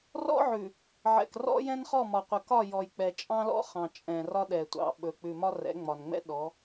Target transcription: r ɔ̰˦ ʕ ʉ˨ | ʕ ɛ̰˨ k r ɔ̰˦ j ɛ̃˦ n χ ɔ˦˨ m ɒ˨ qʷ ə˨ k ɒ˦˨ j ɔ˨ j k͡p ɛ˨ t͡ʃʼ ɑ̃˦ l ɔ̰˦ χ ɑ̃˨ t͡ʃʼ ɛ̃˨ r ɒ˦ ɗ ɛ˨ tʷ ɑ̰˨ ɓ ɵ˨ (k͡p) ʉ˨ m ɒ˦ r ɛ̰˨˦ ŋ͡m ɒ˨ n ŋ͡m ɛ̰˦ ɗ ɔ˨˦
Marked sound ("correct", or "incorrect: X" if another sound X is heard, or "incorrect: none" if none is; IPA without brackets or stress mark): correct